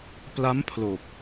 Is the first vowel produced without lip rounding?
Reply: yes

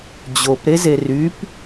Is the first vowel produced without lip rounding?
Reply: no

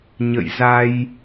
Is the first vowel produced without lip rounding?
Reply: yes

